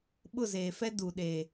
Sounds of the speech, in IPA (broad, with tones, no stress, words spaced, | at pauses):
ɓʊ˦˨zeː˨fɛ˦ du˨ɗe˨